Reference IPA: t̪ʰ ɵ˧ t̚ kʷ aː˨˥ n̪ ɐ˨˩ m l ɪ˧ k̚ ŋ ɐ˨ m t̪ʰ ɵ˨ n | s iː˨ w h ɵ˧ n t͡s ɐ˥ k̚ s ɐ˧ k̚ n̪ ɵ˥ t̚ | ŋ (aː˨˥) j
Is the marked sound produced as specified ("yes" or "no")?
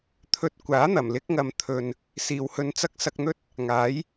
yes